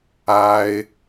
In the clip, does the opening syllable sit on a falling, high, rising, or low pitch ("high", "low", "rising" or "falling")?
high